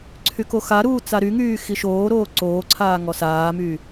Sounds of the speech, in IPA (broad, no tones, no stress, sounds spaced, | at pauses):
ǀʰ y k o x a ɾ uː t͡s a ɾ y ŋ yː x i ʃ oː ɾ oː ǀ oː ǀʰ aː ŋ ɔ s aː m yː